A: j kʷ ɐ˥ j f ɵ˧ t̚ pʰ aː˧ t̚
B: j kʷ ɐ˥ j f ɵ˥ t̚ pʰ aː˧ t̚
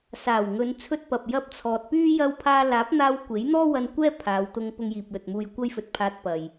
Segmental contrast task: A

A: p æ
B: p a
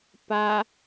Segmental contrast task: B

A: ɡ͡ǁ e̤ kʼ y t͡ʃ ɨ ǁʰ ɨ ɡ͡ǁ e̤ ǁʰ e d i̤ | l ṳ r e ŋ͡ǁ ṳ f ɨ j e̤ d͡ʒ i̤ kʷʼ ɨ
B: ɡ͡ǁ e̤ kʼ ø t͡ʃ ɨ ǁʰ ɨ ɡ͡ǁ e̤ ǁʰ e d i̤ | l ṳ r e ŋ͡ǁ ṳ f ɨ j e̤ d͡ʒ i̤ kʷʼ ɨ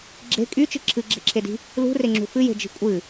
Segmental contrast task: A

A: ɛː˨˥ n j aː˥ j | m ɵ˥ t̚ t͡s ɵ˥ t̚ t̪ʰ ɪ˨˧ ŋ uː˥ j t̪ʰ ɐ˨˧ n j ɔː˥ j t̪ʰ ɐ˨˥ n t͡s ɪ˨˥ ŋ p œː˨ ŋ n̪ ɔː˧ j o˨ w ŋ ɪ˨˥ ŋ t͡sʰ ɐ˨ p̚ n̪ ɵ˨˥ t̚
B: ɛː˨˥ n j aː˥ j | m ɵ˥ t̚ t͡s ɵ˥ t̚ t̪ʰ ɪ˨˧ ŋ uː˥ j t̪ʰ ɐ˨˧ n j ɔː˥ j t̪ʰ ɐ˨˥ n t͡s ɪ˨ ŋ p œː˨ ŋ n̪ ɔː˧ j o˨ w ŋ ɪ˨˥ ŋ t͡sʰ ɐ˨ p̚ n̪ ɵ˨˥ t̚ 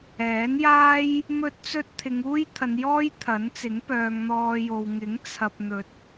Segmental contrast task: A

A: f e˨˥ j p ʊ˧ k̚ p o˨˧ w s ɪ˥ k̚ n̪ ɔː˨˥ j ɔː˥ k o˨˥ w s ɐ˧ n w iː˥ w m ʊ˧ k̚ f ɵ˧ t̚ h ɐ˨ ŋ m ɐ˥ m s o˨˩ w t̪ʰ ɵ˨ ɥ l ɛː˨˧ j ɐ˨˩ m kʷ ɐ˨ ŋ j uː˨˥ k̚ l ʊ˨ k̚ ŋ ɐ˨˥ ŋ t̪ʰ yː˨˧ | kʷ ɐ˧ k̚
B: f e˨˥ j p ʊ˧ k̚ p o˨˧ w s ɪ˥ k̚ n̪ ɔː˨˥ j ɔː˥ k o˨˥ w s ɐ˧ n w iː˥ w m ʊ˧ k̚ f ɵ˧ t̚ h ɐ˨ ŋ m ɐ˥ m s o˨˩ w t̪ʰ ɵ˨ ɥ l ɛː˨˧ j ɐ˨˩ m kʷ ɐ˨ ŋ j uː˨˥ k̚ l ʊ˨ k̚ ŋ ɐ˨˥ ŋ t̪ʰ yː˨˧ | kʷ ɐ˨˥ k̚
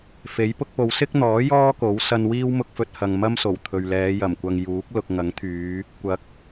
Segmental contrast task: B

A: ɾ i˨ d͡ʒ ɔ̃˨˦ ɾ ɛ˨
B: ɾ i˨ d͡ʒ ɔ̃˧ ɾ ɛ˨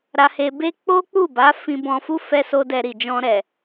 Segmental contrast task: B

